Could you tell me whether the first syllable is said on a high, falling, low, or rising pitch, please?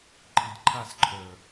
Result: low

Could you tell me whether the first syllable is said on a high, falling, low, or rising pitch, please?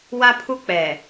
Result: high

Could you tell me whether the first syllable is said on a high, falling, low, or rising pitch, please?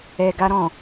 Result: low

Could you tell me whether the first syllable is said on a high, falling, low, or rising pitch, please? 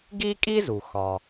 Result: high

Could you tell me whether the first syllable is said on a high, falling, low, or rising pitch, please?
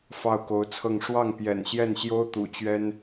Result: falling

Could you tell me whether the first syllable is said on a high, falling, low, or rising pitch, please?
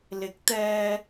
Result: rising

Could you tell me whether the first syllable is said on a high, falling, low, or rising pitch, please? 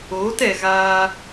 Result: rising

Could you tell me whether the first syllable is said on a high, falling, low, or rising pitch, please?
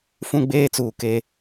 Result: high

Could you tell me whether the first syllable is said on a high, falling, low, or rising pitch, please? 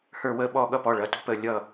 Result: falling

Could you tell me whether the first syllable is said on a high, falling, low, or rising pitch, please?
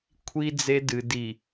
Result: high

